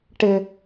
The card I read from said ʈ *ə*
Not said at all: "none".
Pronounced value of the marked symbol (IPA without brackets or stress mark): ɪ